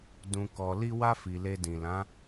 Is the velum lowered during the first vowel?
yes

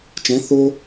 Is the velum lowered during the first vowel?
yes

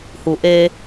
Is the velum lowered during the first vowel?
no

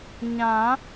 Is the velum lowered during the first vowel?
yes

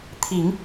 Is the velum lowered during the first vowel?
no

